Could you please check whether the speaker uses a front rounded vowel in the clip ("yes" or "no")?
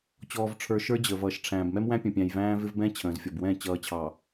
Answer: no